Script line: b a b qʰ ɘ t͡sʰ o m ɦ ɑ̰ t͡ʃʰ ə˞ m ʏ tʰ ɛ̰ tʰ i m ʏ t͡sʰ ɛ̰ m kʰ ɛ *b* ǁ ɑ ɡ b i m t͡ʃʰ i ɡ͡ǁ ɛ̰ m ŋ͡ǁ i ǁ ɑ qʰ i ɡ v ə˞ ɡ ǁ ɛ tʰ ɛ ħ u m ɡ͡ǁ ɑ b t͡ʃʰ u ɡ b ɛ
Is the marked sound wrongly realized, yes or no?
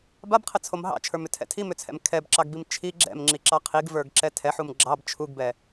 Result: no